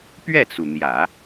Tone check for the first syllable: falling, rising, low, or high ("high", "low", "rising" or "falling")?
falling